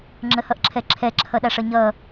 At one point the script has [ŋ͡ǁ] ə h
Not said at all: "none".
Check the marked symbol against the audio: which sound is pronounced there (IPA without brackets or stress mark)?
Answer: ŋ͡ǁ